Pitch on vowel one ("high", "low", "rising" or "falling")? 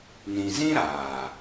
low